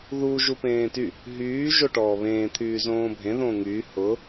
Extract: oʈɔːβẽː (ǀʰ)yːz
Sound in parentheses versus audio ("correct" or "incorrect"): incorrect